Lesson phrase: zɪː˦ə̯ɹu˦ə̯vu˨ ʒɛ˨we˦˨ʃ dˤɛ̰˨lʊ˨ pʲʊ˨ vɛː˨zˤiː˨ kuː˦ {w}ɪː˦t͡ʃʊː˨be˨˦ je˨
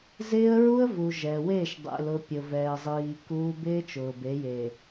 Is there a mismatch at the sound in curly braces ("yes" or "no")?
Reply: yes